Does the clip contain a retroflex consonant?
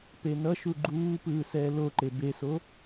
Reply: no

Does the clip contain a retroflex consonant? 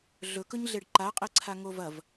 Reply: yes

